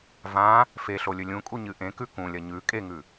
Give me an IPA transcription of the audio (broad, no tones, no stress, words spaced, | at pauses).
vã | feɬolʲɵ lʲũkʼuɲɨ ʔẽkʉ kũlʲɐ ɲʉ kʼeŋʉ